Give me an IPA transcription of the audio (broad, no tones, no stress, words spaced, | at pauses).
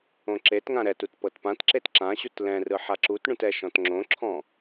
õǁetŋã ɾɛtut pɤtpãtǁet ǁãɕut lɛ̃rɯ ħaǁutɳũt ɛʃɔ̃tŋ͡ǁõǁʰɔ̃